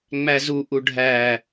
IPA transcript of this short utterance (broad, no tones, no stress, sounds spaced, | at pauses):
ŋ͡m æ z u ʔ u ɖʱ æ